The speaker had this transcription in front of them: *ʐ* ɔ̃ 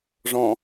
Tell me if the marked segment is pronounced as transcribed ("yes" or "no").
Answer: yes